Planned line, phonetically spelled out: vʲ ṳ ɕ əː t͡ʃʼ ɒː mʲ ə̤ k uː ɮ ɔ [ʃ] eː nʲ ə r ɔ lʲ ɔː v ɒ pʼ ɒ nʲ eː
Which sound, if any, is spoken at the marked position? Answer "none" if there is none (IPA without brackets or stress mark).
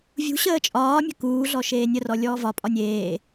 ʃ